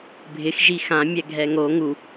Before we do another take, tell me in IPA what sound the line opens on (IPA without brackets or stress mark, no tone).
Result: bʱ